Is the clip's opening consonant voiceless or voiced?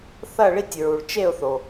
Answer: voiceless